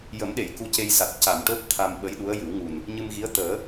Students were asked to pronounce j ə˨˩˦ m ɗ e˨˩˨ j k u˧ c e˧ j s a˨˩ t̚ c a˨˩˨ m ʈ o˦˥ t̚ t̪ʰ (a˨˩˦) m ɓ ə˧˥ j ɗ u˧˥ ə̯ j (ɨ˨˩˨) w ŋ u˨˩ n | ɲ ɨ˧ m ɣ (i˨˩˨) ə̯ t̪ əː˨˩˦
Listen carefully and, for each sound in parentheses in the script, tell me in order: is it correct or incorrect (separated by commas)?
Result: incorrect, incorrect, incorrect